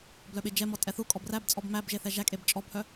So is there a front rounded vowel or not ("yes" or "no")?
yes